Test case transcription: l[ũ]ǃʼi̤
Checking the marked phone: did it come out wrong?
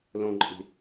yes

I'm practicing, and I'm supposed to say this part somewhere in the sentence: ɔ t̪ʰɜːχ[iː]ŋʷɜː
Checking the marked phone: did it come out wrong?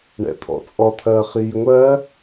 no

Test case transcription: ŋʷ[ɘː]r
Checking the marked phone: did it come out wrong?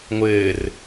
no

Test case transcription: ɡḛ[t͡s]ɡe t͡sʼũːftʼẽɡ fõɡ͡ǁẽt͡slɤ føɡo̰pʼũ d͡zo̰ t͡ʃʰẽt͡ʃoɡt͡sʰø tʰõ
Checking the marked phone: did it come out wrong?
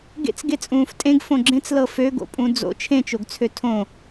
no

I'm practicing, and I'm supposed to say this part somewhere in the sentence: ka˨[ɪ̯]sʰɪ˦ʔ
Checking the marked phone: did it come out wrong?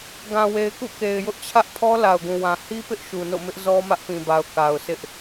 yes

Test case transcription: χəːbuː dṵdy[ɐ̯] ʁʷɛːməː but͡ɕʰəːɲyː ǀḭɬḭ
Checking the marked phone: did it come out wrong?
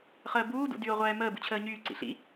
yes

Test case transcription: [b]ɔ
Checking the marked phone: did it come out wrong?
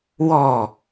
yes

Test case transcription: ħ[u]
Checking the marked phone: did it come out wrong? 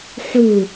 no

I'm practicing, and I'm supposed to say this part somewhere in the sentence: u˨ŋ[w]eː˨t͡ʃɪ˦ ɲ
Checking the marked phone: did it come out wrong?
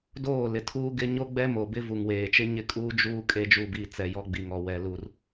no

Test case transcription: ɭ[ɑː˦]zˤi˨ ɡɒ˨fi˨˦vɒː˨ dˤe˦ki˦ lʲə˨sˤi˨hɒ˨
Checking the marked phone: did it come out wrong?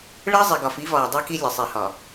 yes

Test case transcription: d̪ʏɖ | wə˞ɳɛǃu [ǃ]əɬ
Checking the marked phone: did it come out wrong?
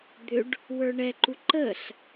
no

